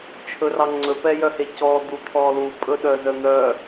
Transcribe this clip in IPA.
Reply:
t͡ʃʰɵrɑŋ͡ǀɵ pɛjœhecɔ d̪ut̪ʰɔlu pʼɵɗœzœn̪œ

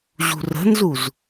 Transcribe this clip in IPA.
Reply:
ʑṳrə̤nzuz

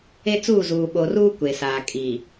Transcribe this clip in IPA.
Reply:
e˦t͡suː˦˨zuː˨ ɓo˨ruː˦ kʷe˨saː˨ kʼiː˨

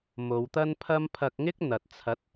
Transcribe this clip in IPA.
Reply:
mo˨˧wt̪ɐ˥npʰɐ˥m pʰɐ˧k̚ŋɪ˥k̚n̪ɐ˨t̚ t͡sʰɐ˨˥t̚

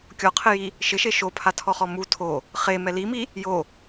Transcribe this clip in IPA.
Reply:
kʲɔqʰɪji | ʃɪʃe ʃopʰatʰɔχɔ mu tʰo | χemɛ limi | jo

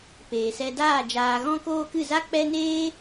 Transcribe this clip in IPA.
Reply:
peː˨sɛ˧daː˦˨ d͡ʒaː˧ɣɔ̃˦koː˦ kɨ˦˨za˦k͡pɛ˦ neː˦

